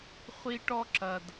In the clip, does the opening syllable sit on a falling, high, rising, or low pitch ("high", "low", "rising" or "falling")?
high